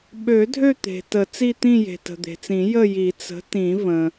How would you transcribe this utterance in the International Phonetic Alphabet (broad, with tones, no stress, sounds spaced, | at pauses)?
ɓ ø˨˩˦ dʱ ø˥˧ t̪ e̤˩ t ə˨˩˦ t͡s i˥˧ t̪ ĩ˥˧ j e̤˩ t ə̤˩ d̪ e̤˩ t͡s ĩ˨˩˦ j ə˥˧ j i˨˩˦ t͡s ə̤˨˥ t ĩ˨˩˦ v ə̃˩